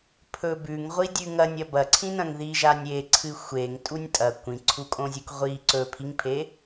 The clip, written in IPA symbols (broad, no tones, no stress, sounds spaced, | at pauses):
pʰ ɵ b ʉ ŋ ʁʷ i dʲ ʉ ŋ ɐ nʲ ɐ b ɐ ǀʰ ĩ n ɐ̃ ŋ ð i ʒ a nʲ e ǀʰ ɨ xʷ e ŋ tʼ u nʲ tʼ ɐ kʷ ĩ ǀʰ u kʼ õ zʲ u k ʁʷ i ǀ ɵ pʰ i ŋ pʰ e